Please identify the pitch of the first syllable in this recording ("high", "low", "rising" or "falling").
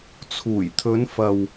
low